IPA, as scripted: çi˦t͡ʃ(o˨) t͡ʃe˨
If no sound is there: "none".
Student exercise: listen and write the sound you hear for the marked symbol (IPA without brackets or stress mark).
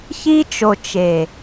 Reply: o˨